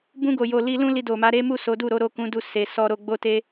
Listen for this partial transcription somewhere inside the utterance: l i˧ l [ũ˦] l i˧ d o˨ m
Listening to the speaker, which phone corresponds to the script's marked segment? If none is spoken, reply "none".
ũ˦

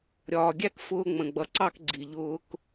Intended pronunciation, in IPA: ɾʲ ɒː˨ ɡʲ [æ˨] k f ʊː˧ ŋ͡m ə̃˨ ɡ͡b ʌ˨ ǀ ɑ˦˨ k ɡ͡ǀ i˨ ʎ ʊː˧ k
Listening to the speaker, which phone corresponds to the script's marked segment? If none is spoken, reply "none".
æ˦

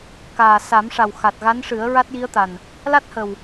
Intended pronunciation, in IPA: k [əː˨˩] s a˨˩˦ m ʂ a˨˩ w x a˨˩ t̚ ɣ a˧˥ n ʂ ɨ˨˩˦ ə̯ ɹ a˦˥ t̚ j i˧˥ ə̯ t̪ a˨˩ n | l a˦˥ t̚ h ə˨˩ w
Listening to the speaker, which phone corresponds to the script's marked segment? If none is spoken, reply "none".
aː˨˩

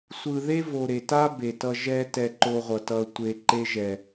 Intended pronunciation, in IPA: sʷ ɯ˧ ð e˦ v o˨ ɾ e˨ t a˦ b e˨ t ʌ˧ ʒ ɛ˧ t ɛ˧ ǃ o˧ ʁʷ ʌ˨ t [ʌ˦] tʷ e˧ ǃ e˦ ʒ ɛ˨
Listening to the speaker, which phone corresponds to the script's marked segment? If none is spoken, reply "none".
ʌ˧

